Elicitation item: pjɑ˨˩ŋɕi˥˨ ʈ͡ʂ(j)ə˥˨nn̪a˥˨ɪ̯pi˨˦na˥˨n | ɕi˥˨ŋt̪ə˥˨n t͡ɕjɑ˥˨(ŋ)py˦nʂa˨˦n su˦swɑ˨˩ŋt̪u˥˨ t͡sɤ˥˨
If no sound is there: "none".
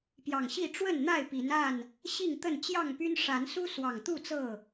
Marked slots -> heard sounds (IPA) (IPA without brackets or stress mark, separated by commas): w, ŋ